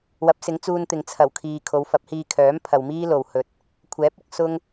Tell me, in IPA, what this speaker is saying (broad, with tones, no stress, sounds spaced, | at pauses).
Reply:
w ɐ˨˥ p̚ s ɪ˨˥ ŋ t͡s uː˧ n t̪ ɪ˨ ŋ t͡sʰ ɐ˨˩ w kʰ iː˨ kʰ o˨˧ w f ɐ˨˥ p̚ h iː˧ kʰ œː˨˥ m pʰ ɐ˨ w m iː˥ l o˨ w h ɵ˨ t̚ | kʷʰ ɛː˨˥ p̚ ʊ˧ k̚ s ʊ˥ ŋ